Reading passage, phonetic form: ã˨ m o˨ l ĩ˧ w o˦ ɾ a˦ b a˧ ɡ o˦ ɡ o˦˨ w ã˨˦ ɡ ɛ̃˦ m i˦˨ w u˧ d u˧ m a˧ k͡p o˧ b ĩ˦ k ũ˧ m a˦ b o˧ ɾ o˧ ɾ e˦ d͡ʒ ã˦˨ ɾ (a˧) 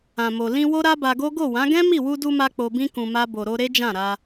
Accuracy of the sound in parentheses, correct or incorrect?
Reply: correct